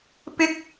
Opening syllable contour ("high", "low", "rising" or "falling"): high